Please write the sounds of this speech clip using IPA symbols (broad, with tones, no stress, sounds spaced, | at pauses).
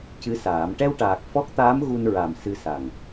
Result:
c ɨ˧˥ s aː˨˩˦ m ʈ ɛ˧ w ʈ aː˨˩ k̚ f ɔ˦˥ k̚ t̪ aː˧˥ m ɣ u˧ n ɹ a˨˩ m s ɨ˧ s a˨˩ ŋ